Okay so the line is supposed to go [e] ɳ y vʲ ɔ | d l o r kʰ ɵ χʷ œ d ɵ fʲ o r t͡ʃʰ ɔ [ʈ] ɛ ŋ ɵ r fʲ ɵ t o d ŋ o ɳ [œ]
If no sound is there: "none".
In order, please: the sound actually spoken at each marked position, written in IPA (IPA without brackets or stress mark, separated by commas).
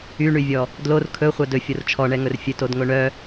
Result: y, ɳ, œ